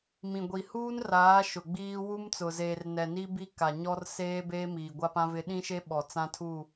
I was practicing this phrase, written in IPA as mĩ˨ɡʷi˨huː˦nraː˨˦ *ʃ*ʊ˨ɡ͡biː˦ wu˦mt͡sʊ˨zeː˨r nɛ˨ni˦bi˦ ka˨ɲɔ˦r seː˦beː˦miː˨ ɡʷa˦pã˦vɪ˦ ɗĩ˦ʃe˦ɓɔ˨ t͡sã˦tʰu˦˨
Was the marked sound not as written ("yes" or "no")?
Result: no